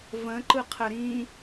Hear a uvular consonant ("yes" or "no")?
yes